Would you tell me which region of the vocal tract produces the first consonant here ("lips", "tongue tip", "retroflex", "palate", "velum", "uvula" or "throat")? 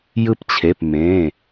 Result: palate